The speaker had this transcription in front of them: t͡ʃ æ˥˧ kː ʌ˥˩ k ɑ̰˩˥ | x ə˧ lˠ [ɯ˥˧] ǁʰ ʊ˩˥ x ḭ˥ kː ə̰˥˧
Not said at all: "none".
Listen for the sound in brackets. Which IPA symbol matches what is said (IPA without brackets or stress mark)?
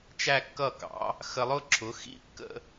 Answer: ʊ˥˧